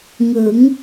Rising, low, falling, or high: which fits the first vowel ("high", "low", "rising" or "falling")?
rising